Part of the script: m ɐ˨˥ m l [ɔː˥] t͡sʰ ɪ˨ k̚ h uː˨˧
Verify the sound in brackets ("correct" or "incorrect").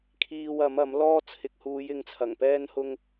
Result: correct